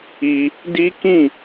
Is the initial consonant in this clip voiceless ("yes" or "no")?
no